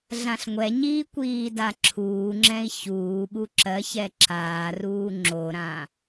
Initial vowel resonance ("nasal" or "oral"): nasal